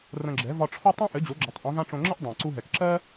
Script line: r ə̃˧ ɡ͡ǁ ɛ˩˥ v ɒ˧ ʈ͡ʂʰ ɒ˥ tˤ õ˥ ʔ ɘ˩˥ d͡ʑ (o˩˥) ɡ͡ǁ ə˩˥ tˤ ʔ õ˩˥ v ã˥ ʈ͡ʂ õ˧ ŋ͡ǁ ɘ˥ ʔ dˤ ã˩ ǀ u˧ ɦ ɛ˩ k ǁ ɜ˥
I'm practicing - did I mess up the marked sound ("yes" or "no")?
no